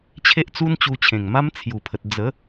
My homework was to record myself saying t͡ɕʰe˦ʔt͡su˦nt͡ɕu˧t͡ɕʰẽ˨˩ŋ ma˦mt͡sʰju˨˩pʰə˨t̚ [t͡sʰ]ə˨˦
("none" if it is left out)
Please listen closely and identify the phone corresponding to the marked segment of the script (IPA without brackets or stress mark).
d͡z